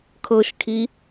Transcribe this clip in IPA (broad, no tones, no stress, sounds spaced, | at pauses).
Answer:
kʰ ɤ ʃ kʰ i